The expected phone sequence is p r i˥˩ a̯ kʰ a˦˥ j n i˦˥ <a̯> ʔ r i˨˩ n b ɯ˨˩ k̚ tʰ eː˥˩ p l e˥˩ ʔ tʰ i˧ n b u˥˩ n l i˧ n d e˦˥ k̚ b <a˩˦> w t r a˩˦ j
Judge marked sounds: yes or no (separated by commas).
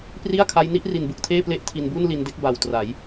no, no